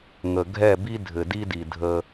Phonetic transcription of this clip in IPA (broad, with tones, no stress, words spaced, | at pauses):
ŋə˨ ɡʱɛ˦˨bi˦ dʱɘ˨di˦di˨ dʱə˦